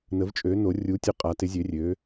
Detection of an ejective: present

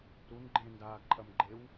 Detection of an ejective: present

